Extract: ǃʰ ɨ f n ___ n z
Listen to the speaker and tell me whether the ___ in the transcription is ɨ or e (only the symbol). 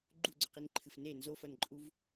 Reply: e